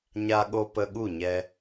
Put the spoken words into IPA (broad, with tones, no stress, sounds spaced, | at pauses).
ɲ a˧ ɠ o˧ p ə˧ ɠ u˦˨ ɲ ɛ˧